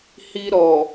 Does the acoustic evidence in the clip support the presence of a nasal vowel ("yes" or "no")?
no